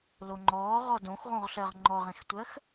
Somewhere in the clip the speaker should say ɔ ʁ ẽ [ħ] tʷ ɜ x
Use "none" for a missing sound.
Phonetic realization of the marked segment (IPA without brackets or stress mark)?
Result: x